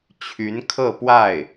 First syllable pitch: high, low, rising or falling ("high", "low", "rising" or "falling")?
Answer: rising